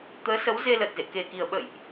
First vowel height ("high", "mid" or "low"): mid